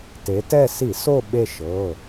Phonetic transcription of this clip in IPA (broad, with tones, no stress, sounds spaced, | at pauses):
t e˩˧ t ɛ˦˨ s i˧˩˧ s o˦˨ ɓ e˦˨ ʃ ɤ˩˧˩